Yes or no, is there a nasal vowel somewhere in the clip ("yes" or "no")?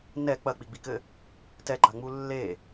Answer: no